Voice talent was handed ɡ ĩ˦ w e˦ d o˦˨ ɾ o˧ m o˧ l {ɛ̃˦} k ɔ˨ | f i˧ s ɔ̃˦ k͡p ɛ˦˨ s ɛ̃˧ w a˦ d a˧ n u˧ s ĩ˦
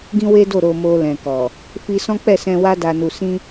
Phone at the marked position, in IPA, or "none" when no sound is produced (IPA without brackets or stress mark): ɛ̃˨